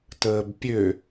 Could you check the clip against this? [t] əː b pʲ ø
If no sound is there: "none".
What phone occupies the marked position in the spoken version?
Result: t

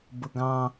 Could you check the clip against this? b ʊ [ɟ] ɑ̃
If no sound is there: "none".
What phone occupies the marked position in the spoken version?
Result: ɡ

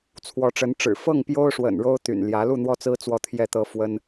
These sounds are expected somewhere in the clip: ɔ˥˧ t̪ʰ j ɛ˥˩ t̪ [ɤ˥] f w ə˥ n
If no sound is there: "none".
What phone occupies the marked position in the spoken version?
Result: ɤ˥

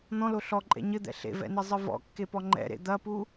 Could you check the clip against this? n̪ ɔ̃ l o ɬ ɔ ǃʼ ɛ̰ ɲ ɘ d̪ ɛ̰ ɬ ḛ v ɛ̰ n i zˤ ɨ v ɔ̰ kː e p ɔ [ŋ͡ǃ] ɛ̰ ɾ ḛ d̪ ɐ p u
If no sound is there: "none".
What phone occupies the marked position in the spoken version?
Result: ŋ͡ǃ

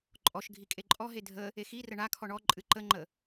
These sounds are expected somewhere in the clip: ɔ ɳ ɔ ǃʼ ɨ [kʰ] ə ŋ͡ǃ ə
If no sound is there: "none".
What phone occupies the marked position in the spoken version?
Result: ǃ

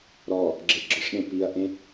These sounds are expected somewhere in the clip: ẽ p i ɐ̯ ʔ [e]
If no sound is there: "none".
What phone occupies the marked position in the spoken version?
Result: ẽ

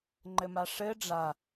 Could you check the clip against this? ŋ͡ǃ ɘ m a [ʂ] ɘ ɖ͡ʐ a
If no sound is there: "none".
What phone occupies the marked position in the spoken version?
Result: ʂ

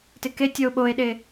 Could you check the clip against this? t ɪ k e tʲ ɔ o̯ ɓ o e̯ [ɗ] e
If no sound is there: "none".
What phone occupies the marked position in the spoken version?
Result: ɗ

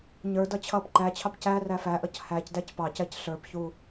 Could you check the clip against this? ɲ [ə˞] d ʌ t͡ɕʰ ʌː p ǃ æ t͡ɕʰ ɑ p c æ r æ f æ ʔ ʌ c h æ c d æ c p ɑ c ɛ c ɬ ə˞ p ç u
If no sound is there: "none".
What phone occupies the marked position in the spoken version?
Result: ə˞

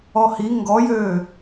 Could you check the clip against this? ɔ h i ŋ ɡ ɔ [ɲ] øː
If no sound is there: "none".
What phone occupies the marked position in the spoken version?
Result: j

